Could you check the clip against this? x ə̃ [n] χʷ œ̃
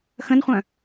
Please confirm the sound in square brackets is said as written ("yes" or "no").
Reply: yes